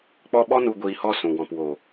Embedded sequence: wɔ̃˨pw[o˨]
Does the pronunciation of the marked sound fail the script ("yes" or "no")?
no